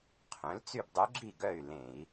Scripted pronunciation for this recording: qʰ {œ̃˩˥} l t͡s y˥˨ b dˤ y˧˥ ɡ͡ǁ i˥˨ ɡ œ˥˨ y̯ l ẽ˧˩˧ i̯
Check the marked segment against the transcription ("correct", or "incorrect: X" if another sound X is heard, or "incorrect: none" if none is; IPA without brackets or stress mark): correct